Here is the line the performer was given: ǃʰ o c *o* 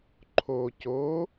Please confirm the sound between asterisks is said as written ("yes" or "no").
yes